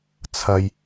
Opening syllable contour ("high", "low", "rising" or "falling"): high